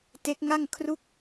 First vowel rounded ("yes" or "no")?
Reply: no